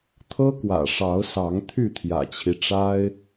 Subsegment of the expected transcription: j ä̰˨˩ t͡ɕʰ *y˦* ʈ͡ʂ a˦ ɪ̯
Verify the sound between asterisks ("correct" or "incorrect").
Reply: incorrect